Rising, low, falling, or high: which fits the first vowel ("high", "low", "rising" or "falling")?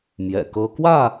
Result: low